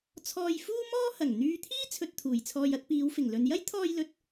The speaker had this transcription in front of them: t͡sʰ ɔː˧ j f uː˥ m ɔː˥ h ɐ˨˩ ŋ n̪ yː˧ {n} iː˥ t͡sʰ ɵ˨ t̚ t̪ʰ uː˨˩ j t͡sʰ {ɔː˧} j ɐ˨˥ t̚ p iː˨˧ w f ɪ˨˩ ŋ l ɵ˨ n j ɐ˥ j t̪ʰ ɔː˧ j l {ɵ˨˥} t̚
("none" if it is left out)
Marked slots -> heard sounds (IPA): t̪ʰ, ɔː˧, ɵ˨

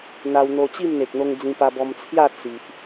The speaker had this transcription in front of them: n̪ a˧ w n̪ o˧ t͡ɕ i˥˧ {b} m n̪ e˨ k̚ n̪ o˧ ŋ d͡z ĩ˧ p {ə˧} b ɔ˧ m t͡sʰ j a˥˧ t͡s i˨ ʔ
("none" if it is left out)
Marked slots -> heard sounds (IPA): none, a˧

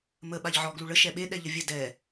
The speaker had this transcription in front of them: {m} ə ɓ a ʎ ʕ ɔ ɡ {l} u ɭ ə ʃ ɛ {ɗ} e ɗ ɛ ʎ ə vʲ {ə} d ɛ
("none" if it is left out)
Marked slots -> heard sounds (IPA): m, l, ɓ, ə

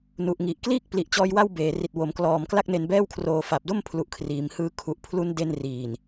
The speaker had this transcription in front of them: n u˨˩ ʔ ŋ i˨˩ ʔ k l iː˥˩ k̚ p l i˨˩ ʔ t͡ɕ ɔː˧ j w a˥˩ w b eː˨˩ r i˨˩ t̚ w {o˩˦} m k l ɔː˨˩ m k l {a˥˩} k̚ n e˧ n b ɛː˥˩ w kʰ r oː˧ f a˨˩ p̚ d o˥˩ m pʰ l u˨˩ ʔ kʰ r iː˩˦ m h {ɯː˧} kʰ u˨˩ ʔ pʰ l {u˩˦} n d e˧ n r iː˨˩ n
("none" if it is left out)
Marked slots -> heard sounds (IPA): o˩˦, a˥˩, ɯː˦˥, u˦˥

